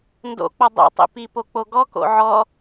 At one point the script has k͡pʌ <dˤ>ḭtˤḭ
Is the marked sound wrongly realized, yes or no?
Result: no